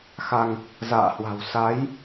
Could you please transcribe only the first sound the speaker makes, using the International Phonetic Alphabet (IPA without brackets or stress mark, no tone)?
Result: x